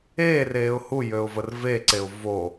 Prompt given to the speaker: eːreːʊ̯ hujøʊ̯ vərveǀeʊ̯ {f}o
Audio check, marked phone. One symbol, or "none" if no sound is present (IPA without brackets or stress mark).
v